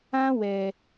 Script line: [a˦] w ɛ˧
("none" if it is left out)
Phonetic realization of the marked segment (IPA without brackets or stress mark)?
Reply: ã˦